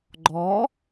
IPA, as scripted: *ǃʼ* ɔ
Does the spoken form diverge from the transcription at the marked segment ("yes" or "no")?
yes